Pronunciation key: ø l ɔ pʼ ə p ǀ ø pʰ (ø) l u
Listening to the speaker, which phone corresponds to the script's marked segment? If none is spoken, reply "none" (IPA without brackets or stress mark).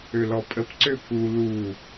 u